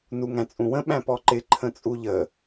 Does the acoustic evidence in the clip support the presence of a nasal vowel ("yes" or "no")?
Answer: yes